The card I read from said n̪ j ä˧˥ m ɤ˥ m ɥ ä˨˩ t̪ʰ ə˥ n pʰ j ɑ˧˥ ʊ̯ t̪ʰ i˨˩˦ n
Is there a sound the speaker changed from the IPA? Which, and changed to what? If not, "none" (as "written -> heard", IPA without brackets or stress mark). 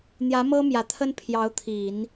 ɥ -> j